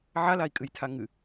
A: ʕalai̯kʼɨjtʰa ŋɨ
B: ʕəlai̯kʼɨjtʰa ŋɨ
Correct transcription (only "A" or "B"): A